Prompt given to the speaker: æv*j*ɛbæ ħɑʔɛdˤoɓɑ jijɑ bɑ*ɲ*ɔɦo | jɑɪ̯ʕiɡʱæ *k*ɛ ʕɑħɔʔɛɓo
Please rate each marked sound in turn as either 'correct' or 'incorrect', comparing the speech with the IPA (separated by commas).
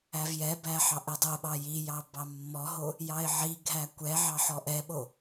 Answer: correct, incorrect, incorrect